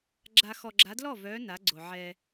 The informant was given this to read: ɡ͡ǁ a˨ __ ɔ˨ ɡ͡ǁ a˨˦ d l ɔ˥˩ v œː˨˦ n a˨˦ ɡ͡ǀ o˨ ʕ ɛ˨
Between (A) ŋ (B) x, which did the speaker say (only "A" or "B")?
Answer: B